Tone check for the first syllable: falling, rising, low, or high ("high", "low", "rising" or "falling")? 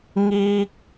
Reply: high